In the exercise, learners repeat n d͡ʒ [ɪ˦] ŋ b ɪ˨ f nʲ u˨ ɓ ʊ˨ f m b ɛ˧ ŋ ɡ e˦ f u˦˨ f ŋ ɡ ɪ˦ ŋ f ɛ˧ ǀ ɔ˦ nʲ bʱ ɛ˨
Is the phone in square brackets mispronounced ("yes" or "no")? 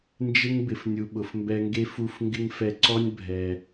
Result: no